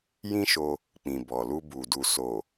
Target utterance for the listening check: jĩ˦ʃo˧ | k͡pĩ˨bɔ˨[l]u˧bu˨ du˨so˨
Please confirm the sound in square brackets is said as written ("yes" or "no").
yes